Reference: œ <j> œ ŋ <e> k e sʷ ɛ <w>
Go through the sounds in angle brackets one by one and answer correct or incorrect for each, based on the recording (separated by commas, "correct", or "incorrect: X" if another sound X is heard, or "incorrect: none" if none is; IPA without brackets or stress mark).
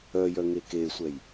correct, correct, incorrect: j